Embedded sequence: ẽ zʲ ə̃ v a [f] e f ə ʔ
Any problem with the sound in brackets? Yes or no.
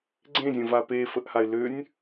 yes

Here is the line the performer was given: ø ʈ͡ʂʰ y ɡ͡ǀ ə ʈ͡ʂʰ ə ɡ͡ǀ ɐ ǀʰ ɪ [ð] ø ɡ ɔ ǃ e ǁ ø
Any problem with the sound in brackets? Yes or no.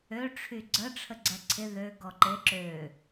no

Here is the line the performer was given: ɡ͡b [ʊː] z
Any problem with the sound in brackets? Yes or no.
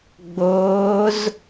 no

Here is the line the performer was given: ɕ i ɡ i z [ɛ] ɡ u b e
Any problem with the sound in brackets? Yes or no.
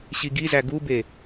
yes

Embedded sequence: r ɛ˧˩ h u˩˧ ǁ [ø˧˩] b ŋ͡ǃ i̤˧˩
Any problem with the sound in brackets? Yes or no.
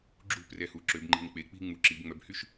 yes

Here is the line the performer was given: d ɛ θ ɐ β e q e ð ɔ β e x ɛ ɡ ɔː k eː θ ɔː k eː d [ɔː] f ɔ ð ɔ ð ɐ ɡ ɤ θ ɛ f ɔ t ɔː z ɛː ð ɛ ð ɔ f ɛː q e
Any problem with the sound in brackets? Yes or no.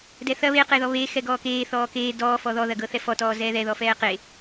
no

